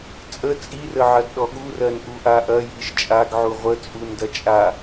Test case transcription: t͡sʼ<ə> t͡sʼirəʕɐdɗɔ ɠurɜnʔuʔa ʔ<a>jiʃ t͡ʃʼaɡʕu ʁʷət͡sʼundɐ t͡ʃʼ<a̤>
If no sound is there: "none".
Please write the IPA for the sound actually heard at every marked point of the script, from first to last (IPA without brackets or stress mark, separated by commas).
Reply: ə, ɐ, a